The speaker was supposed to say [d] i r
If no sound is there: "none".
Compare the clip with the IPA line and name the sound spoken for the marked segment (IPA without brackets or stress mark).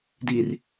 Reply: d